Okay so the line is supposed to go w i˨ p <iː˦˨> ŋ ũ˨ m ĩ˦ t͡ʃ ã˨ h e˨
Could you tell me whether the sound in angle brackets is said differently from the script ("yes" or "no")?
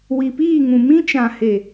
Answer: no